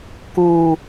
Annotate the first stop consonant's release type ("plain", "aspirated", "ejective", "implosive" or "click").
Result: plain